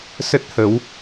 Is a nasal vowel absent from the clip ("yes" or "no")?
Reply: yes